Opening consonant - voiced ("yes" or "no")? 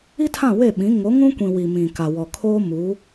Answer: no